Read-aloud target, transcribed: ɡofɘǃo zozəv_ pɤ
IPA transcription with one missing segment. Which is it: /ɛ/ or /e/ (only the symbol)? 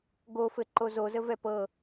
ɛ